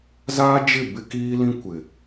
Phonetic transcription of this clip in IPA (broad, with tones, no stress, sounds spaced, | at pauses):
z aː˦ d͡ʒ ɪ˦˨ b ɪ˦ k iː˦ l ĩ˦ kʷ ɪ˨